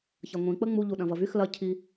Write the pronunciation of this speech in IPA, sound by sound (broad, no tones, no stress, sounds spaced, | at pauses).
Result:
ç ɐ ŋʷ ĩ k͡p ə ŋ͡m u ʎ u ɗ ɐ̃ v ɐ v y x l ɐ cʰ i